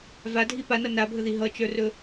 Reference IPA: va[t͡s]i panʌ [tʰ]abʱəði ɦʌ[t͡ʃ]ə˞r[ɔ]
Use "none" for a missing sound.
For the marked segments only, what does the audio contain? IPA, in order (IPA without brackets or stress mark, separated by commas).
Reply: dʱ, n, t͡ʃ, ɵ